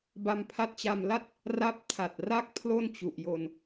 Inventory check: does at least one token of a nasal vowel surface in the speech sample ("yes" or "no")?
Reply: no